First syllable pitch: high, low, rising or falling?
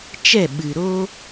falling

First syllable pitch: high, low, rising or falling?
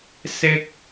high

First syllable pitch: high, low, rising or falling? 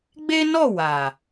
high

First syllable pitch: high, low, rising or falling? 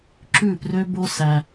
falling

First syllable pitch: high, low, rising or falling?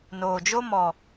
low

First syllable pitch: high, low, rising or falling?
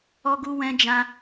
high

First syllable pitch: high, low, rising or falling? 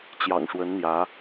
low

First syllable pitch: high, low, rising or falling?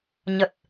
low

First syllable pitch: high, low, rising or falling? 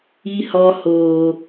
high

